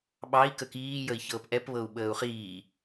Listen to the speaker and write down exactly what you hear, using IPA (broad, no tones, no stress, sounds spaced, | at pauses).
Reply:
ɓ ɑ i̯ k ə k iː j ə i̯ ç ɤː p ʔ ɛ p β ɤ u̯ ɓ əː u̯ χ iː